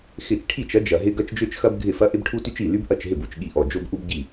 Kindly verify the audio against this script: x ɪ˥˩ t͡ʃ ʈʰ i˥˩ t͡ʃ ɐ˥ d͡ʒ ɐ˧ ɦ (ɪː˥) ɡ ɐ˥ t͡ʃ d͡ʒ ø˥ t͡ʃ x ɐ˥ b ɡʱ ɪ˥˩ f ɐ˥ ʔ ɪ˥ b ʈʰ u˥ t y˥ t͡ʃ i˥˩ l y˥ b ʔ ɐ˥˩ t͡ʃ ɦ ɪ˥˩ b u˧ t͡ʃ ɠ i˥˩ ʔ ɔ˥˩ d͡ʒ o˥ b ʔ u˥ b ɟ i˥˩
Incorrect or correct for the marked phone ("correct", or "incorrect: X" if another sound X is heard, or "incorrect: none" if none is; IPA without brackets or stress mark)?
incorrect: ɪ˥